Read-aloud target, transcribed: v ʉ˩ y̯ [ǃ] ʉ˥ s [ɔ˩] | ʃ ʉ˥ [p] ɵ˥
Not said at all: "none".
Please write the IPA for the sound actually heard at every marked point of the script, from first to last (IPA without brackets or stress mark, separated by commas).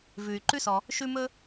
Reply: ǃ, ɔ˩, m